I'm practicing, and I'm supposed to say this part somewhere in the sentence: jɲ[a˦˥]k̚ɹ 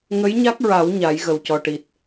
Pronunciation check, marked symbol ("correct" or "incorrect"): correct